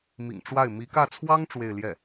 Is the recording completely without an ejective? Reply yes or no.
yes